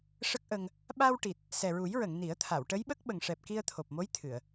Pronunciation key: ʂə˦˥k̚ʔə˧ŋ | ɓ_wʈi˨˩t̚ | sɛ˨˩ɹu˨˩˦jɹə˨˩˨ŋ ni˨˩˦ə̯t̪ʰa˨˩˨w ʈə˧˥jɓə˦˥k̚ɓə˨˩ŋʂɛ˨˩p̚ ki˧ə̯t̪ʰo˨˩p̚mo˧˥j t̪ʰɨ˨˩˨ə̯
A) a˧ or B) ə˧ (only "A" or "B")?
A